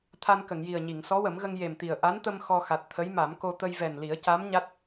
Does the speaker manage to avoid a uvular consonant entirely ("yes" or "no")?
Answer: yes